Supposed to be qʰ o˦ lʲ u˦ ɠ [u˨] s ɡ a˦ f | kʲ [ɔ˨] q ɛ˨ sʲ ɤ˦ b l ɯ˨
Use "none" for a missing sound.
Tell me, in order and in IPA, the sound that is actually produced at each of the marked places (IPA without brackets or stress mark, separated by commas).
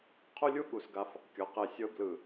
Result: u˨, ɔ˨